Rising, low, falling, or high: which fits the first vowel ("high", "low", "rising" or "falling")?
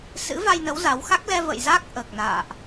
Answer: rising